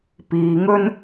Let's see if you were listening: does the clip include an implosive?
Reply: no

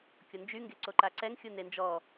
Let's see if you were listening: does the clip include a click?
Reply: yes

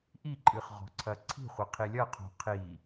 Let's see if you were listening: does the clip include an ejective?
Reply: yes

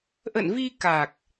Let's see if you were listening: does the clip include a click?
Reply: no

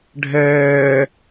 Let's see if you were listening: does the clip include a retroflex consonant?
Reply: yes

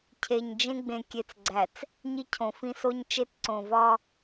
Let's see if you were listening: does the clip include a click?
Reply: yes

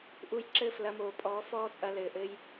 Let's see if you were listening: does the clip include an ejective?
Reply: yes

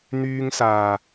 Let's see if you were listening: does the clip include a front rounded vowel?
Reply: yes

